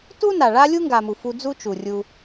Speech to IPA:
t u˦ n a˨ ɭ a˦ lʲ u˦ ŋ ɡ a˨ m u˨ f u˧ d͡z u˦ t͡ʃ u˨ rʲ u˧

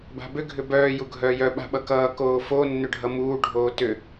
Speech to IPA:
b a̤ b ʏ ɡʱ ʏ b œː j u ɡʱ œː j œ ɓ a̤ ɓ ʌ k ʌː k oː f o nː ʏ ɖʱ ʌ m uː ɖʱ oː t ʏ

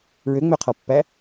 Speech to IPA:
ɹ ø ŋ͡m ø qʰ ɔ pː æ

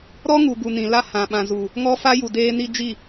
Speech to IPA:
ɾ ɔ˦ ŋ u˨ ɡ u˨ n ĩ˨ l a˦ h ã˨ ɓ ã˨ z u˨ | ŋ ɔ˦ f a˦ j u˨ d eː˦ n i˦ d͡ʒ i˦˨

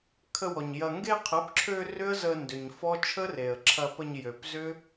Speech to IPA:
kʰ ə˧ w ɔ˨ ɲ j ɐ˨ ŋ ɡ e˧ qʰ ə˨˦ p ǁʰ ø˧ r ʏ˦ ə̯ z ə˧ n d ʏ˨ ɲ f ɔ˦ t͡ʃʰ ə˦ r e˨ ə̯ ǁʰ ɐ˧ p ə˧ ɲ j ø˨ p z ʏ˦

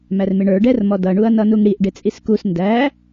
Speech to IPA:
m æ r m ɪ ɳ ə˞ ɖ ɛ r m ɔ d ʌ ɳ u ɐ̯ n ʌ n u ŋ ɽ i ʔ ɖ ɪ t͡sʼ i s k u s n d æ

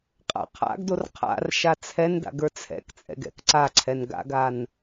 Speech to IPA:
qʼ a̰ qʰ a̰ ɡ d o r qʰ a̰ r ʃ a t͡sʰ ɛ n d a̰ ɡ ə˞ t͡sʰ ɛ̰ k t͡sʼ ɛ̰ ɡ ɛ̰ k ǀ a ǀʰ ɛ n ɡ a̰ ɡ a n

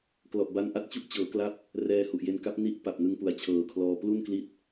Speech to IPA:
k l ɔ˨˩ ʔ b a˧ n ʔ a˥˩ t̚ t͡ɕ u˥˩ ʔ t͡ɕ ɤː˩˦ k l a˦˥ p̚ | r ɛː˧ h u˨˩ ʔ j e˧ n k a˦˥ p̚ n i˦˥ ʔ p a˨˩ p̚ n ɯ˧ ŋ p u˨˩ a̯ t͡ɕʰ ɤː˨˩ kʰ l ɔː˧ p l u˥˩ n k l i˦˥ t̚

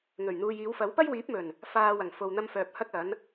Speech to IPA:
ŋ ɵ˨˩ ɥ n̪ uː˨ j iː˨˧ w f ɐ˨˥ w p ɐ˥ j w iː˨˥ p̚ m ɵ˨˩ n | f aː˧ w ɐ˨˩ ŋ f o˨ w n̪ ɐ˧ m f œː˨ p̚ h ɐ˥ k̚ ɐ˨˥ n

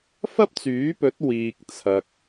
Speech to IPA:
f ɐ˥ p̚ t͡s yː˨˥ p ɵ˨˥ t̚ w iː˨ k̚ t͡sʰ ɐ˨ k̚

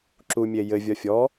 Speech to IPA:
ǁ u mʲ e j ɘ vʲ ɒ fʲ ɔ

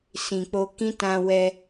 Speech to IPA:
s ĩ˨ k͡p o˧ k ĩ˦ t ã˧ w ɛ˧

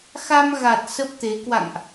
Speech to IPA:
x a˧ m ɣ a˨˩ t̚ s ə˦˥ p̚ t̪ e˨˦ k w a̰˧˨ ŋ ʔ

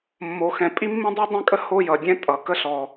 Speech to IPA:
mː o˩ x ɛ̃˩ pʼ i˥ mː ĩ˥ dˤ i˥ dˤ ɛ̃˥ kʼ ə˥ h o˥ j ʌ˩ dʲ ɛ̃˥ tʼ ʌ˩ k ə˥ ɬ ɔ˩

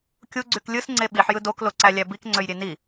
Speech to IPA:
kʲ u ɡ͡ǀ y k lʲ ɯ s ŋ͡ǀ e ɓ i ħ j ɯ d o k l o ǀ æ lʲ æ b i k ŋ͡ǀ ø j ɾʲ e n i

